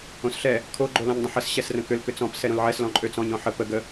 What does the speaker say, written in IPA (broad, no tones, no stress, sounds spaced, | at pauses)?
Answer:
õ s ɬ ɛ | kʰ o ɡ͡ǃ o l ɔ̃ ɲ dˤ ə̃ ħ ə s ɕ ɛ s r ə̃ k ʏ l k ʏ t͡s ɔ̃ p s ɛ ɾ õ l ʕ ɛ s l ɔ̃ ǃʼ ø t͡s ɔ̃ ɲ ɔ̃ ħ ə p ə ɡ ə